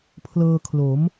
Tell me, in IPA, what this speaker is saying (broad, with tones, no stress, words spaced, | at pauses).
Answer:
pʰlɤː˧kʰlo˩˦m